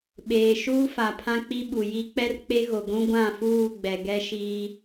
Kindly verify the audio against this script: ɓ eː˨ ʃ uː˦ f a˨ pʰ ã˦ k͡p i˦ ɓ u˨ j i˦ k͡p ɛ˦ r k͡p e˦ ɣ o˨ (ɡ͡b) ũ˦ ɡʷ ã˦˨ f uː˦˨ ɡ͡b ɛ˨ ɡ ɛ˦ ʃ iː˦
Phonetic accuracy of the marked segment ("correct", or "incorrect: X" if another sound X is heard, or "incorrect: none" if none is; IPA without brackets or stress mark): incorrect: ɡʷ